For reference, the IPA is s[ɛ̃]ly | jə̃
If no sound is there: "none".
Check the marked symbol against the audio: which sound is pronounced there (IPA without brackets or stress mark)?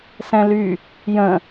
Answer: ɛ̃